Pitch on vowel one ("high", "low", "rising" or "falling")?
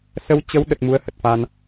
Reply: rising